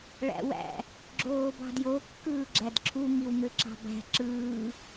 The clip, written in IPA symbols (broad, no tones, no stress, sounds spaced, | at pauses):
ɭ æ̰ w æ̰ | ɡ͡ǁ oː b ɑ̤ d j o kː ɯː ɡ͡ǁ æ d ǁʰ u ŋ i w ŋ ø ǁ ɑ̤ b æ̤ ǁ ɯː